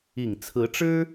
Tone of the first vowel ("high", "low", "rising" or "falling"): low